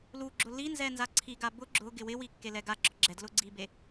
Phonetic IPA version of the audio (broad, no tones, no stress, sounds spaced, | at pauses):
l u ɡ͡ǁ ʊ l i n z ɛ n z a ǀʰ i ɡ a b ʊ ɡ͡ǁ ʊ ɡ ɪ w ɪ w i kː e l ɛ ɡ a ɡ͡ǁ ɔ ɡ͡ǁ ɛ d l ʊ ɡ͡ǀ i b e